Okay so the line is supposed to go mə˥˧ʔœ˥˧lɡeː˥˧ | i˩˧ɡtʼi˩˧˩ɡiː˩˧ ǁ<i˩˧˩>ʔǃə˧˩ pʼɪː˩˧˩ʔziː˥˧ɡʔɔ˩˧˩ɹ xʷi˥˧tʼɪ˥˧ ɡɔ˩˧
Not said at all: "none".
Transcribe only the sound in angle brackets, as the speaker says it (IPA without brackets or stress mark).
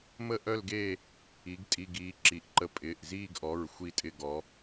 i˩˧˩